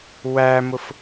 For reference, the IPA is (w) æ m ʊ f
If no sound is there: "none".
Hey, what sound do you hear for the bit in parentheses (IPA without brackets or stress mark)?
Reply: w